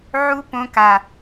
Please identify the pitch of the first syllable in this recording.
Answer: high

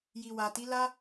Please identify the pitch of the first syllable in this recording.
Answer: low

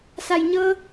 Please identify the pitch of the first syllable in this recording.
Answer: low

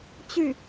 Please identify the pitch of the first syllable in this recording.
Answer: falling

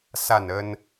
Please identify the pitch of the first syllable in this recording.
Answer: falling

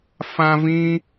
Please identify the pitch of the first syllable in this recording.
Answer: high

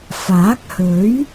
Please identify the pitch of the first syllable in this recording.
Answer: rising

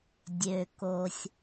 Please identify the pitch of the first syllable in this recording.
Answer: low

